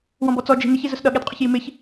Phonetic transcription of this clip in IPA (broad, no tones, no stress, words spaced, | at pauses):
wɔ̃bɔt͡sɔ d͡ʒi̤ nɪç izʊsɗʌ ɠɛdqʼʊçjimɪç